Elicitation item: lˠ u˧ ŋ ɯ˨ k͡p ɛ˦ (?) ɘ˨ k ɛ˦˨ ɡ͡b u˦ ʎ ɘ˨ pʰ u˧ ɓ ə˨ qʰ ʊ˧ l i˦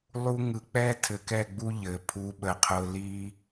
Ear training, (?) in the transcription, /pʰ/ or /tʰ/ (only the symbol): tʰ